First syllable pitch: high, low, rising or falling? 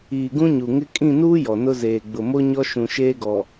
low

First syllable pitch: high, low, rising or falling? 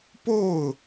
falling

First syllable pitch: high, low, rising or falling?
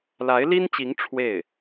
rising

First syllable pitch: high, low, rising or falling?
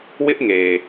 high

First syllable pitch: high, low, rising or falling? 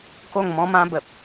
falling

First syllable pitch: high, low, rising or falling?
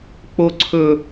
high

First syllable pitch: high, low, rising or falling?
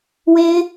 high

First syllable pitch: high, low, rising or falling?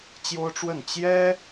high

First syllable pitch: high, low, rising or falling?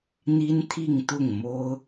high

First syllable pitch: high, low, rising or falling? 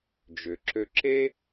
low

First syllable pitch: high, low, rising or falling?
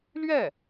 falling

